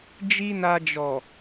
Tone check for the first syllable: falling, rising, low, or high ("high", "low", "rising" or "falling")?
high